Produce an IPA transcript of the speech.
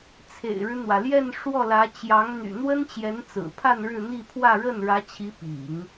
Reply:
t͡sʰḛ˨˩ɪ̯ɻɻ̩˦n̪wä˩ljɛ˥˧n ʂwɔ˥˩lä˧˥ t͡ɕjɑ˧˥ŋ n̪y̰˨˩n̪wə˥nt͡ɕjɛ˧˥n t͡sɹ̩˨˩pʰa˥˧n ɻɻ̩˥˧ n̪i˥˧pʰwä˥˧ ɻə˥˩nɻä˧˥t͡ɕʰi˧˥ pḭ˨˩˦ŋ

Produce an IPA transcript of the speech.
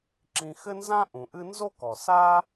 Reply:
ǁĩ˨xɘ˦ nzã˥ʔũ˩ʔɨ˦ nzo˥kɔ˩sa˥

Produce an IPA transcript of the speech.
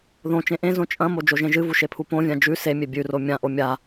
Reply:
ðõ t͡ʃẽʔẽzõ t͡ʃʼɐ̃mo d͡ʒoʒẽʒɨvu ʃepʰupõvʲã d͡ʒʉ semʲe bʲʉro mʲãʔo mʲa

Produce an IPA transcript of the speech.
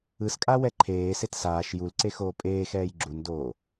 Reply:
ɯskʼa wɛǃʰeːset saːʃ julǀe xoːpʼeːxɛːj ɡ͡ǁundoː

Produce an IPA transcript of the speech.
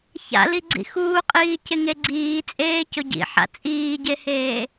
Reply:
ça̰liɡ͡ǀḭ xuːqʼiː cɪŋeɡ͡ǀiː t͡sʼeːcʊɟḭ ħa̰t͡sʼiːɟeheː

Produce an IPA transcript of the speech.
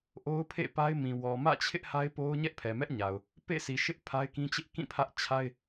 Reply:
ʔo˦ʊ̯pʰḛ˦˨pa˦ɪ̯mĩ˨ wɔ˨mä̰˦˨t͡ɕʰɪ˦ʔ ha˦ɪ̯po˦ʊ̯ ɲɛ˦ʔpʰɛ˨mɛ˦ʔɲa˨ʊ̯ | pḛ˦˨si˨ʃɪ˦ʔ pʰa˦ɪ̯kĩ˦ t͡ɕɪ˦ʔkĩ˦˨ pʰä˦ʔ t͡ɕʰa˦ɪ̯

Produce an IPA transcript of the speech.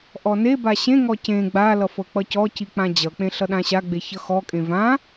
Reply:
ʔɔneba ɕẽŋɔ cẽ ɡ͡balʌfɤ k͡pʌcɔci k͡pãd͡ʑʌk͡pẽɬʌ ɗãɕa ɡ͡beçʌxɔkʼẽ vã

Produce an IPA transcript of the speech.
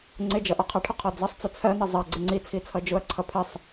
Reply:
ŋ͡ǀɪd͡ʒʌ ʔɔqʰɑʈʰʊ qʰɔd͡zʌsˤt͡sʊ t͡sʰɜn̪i zˤɜ ɡ͡ǀɪŋ͡ǀit͡sʰi t͡sʰʌd͡ʒʊɐ̯ǀʰʌ pʰɪsˤ

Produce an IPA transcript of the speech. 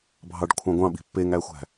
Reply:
bʱɑɖkʷʰɑ̃ɡʷɑ̃ɓi̤ pːeŋæxʷæ̤

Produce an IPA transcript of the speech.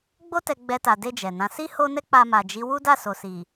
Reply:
ɡ͡bo˦tɛ˧ ɡ͡bɛ˧ta˨de˧ d͡ʒɛ˨nã˨˦ si˦ho˦nɛ˦ k͡pa˧ma˨d͡ʒi˨˦ wu˦da˦˨so˨si˨

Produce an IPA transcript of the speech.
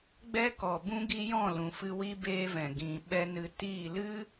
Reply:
ɡ͡bɛ˦kɔ˨bũ˦ ɡi˦jɔ̃˦˨lũ˨fɨ˧ wi˦ beː˦vɛ̃˨ ɡĩ˨ɓɛ˦ nɨ˧ tiː˦˨ lɨ˦

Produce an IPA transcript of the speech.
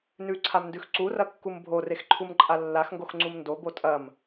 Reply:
nʉǀʰamndʉx ǀurɐkːum bʱorexǃʰumǃʼa lːaxŋɡoxŋ͡ǀum ndobo tʼɐm

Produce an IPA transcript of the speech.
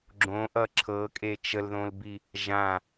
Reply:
ɡ͡ǁõʔʌ ǁʰɤkʼe t͡ʃəlðõlbi | ʒã

